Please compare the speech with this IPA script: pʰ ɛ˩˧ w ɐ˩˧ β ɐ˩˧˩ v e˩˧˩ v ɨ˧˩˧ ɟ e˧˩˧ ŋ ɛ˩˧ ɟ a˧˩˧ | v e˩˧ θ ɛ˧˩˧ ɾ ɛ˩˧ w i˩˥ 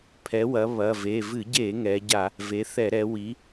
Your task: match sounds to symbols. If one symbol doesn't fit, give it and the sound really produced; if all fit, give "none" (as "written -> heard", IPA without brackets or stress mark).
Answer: none